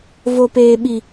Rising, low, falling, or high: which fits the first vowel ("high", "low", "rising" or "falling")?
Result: low